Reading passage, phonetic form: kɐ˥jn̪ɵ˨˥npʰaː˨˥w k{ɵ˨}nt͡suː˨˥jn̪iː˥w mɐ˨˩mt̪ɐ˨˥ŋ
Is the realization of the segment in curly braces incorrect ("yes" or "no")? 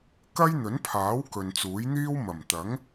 no